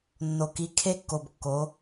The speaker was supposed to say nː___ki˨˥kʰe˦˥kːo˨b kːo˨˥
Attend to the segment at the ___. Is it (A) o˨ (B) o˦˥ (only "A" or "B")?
A